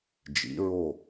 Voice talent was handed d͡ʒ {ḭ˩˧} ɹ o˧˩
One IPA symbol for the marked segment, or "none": ḭ˩˧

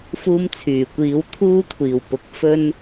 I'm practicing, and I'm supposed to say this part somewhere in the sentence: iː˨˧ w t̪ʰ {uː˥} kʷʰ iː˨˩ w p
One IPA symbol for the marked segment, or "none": uː˥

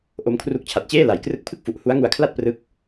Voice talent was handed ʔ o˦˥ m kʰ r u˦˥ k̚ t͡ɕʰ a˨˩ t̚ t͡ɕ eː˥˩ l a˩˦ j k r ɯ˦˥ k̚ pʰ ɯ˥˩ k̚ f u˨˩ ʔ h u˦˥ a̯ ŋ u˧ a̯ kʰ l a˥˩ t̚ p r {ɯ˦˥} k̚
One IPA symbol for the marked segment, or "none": ɯ˦˥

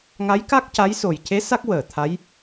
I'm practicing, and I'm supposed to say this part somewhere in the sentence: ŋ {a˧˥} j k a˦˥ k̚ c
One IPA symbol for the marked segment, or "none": a˧˥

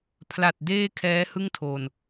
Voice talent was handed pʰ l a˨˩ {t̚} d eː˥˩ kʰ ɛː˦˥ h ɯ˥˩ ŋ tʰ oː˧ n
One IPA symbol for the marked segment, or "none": t̚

